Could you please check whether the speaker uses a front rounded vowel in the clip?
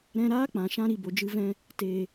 no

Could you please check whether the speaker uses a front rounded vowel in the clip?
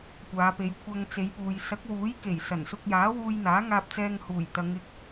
no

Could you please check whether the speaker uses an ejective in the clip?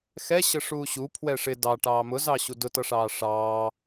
no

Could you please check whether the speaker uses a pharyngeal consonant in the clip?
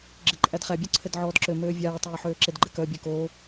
yes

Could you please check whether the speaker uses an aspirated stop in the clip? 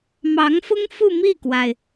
no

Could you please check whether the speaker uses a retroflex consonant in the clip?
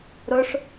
yes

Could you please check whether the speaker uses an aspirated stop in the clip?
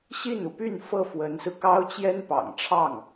yes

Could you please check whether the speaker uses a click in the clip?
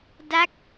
no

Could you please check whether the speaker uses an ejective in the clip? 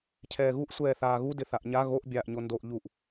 no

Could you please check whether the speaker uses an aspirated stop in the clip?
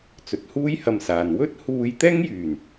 no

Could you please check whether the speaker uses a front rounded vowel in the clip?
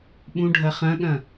no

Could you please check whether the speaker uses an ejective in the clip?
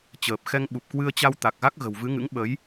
no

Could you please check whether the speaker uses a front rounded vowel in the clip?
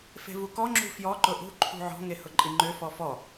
yes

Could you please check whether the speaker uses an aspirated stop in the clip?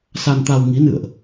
no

